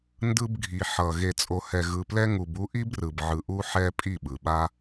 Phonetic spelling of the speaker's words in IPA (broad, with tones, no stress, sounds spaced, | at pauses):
n d ɯ˧ b ɡʱ i˨ ħ ʌ˨ ɣ e˨ t͡sʼ o˨ h ɛ˨ ɣ ɯ˨ p l ɛ˧ ŋ u˨ b u˧ ʔ i˦ b r ɯ˨ b ʕ ɯ˨ ʔ u˧ ħ ɛ˧ pʼ i˦˨ ɓ ɯ˨ ɓ a˦